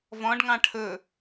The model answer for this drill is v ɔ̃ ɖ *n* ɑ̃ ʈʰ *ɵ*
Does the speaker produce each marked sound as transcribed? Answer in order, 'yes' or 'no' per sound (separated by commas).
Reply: no, yes